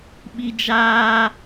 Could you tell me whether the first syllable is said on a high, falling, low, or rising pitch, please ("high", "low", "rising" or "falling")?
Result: high